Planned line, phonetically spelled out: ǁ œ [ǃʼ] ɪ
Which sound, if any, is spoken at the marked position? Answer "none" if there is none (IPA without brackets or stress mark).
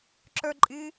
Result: ǃʼ